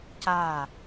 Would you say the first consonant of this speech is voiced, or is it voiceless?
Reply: voiceless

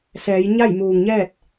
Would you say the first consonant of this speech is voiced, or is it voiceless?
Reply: voiceless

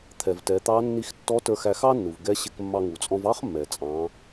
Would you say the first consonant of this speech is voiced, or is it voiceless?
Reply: voiceless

